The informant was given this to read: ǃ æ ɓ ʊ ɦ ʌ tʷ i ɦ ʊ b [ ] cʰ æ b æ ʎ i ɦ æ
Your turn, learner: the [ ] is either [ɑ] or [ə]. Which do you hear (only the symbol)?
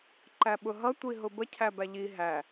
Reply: ə